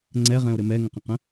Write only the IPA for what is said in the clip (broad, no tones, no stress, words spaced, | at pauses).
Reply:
ŋ͡ǀɛʁɛ̃o̯ɾɘ mɛŋə̃qə̃qə̃